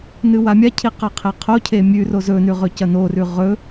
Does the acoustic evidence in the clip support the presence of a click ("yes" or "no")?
no